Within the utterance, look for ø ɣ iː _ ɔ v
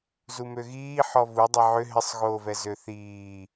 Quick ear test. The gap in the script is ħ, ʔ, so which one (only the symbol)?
ħ